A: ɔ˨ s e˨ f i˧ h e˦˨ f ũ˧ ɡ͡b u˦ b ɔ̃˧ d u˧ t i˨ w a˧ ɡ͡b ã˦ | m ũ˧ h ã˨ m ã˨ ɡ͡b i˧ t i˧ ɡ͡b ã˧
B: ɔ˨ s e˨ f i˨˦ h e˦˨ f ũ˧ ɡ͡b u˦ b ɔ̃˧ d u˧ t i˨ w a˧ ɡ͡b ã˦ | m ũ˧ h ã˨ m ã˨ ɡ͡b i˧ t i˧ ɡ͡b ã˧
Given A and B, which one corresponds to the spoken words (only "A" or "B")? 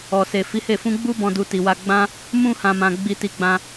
B